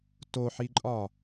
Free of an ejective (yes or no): no